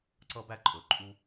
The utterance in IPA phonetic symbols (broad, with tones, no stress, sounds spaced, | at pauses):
ǀ ʌ˦ b æ˦ ǃʼ ɵ˨ ǃʼ u˦